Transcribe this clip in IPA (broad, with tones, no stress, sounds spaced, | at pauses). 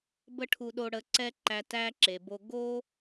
b ə˦ ʈʰ u˧ ɗ o˧ ɽ ə˧ ǀ ɛ˦ ǃ æ˧ t æ˧ ǁ e˨ b o˧ ɡ o˦